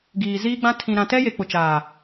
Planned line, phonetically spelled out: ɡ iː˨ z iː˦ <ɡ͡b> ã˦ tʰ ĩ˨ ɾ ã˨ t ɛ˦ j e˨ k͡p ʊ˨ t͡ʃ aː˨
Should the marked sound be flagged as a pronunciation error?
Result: no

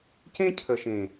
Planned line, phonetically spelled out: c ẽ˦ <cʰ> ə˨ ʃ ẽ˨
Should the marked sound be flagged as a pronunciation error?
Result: no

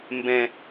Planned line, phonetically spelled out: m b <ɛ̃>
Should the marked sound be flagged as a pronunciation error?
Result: no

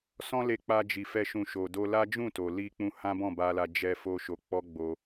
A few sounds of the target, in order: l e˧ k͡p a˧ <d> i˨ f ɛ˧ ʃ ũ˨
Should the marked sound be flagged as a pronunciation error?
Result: yes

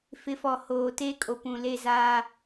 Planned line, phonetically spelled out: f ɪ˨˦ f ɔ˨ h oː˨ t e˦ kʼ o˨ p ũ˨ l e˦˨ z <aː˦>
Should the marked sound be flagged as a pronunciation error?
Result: no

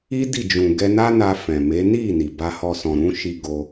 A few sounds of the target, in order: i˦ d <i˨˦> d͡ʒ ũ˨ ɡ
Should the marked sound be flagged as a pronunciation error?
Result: yes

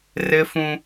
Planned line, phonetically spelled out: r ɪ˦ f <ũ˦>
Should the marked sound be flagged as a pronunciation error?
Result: no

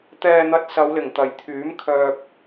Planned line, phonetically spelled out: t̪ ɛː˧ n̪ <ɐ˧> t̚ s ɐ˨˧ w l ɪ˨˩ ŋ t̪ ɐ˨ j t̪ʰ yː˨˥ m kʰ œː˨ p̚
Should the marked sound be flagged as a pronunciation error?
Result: no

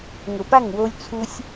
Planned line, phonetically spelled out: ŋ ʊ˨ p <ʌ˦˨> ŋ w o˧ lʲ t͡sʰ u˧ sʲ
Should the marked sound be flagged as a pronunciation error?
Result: yes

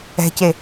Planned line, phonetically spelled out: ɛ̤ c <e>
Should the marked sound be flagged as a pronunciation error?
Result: no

